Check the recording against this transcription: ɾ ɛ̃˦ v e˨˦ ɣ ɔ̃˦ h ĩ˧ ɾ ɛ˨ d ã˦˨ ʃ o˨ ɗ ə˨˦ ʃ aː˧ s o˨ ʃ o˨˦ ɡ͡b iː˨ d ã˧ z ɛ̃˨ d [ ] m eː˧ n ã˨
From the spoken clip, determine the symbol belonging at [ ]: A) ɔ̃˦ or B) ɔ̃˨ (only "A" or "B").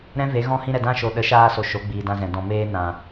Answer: B